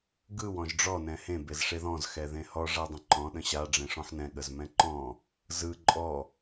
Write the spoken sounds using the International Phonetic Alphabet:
ɡ ɯ w ɔ̃ ʒ ɖ͡ʐ ɔ n ɛ̃ h ẽ b e z ʂ e ð ɔ̃ z x ɛ ð ẽ h ɔ ʐ a dˤ ə̃ ǃ ɔ̃ ɗ ə̃ ɕ a ɖ͡ʐ ẽ ʂ ɔ̃ ħ n ɛ̃ ɠ ə z m ɛ̃ ǃ ɔ̃ | z ɯ ǃʼ ɔ

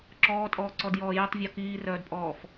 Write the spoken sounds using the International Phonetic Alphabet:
ǁ ɔː tʼ ɔː ǀ ɔ d j ɔː j œ tˤ vʲ ɔ k iː r œː d pʼ ɔː f

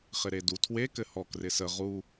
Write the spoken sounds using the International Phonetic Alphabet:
χ ɪ ɾ e d u tʰ w e k ɘ h ɔ k r ɪ s ə ʁ u

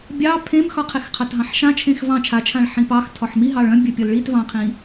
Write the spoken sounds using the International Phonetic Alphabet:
bʲ ɑ pʰ ẽ m x ɒ qʰ e x qʰ a t ɦ ɑ̃ ħ ʃ ã t͡ʃʰ ẽ x v ɑ̃ t͡ʃʰ a t͡ʃʰ ã ɭ ħ ĩ p ɑ x tʰ ɒ ħ m i ɦ ɑ ɭ œ̃ bʲ œ pʲ ɒ l ɭ i t v ɑ̃ qʰ ĩ

